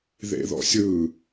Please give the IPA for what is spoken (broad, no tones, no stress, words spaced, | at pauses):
ðḛðɔ̰sʲɯ